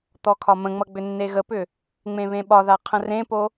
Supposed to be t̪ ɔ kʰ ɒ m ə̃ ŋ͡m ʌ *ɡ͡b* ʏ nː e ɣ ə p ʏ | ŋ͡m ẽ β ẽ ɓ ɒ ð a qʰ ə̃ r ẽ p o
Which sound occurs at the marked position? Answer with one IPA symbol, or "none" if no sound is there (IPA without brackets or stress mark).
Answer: ɡ͡b